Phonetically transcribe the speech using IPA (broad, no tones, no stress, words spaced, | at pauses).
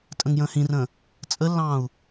tʼə̃ŋjə̃ːhĩrə̃ː | t͡sʼəlːɑ̃ːu̯